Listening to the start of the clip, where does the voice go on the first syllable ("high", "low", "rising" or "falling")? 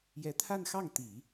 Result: rising